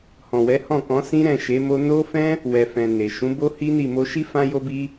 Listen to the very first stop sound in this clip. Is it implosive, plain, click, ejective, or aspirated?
plain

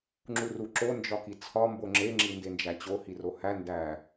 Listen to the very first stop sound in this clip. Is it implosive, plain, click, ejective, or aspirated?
click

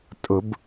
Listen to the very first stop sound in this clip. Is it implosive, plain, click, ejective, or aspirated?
ejective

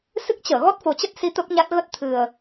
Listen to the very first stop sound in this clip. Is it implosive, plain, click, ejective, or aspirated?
plain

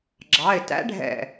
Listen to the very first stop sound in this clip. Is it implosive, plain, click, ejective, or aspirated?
click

